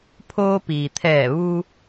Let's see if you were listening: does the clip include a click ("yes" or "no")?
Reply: no